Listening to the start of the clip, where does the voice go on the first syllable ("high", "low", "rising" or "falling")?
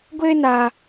high